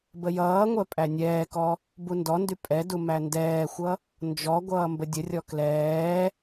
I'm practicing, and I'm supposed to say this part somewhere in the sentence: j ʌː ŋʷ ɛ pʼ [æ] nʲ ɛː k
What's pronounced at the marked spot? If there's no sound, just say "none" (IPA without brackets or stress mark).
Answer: æ